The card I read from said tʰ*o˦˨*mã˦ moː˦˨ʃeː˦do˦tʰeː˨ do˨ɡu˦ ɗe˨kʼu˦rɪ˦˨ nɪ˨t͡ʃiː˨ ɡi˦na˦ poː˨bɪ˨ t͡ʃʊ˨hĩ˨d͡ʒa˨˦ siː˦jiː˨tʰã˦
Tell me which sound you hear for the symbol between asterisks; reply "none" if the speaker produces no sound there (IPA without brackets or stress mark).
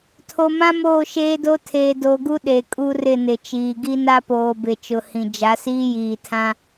o˨